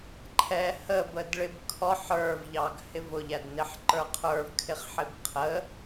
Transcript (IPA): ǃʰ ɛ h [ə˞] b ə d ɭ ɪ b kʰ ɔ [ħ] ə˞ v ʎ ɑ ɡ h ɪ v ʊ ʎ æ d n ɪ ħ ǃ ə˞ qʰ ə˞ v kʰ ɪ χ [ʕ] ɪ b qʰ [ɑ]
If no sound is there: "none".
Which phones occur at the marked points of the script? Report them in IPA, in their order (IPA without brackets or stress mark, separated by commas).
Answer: ə, ħ, ħ, ə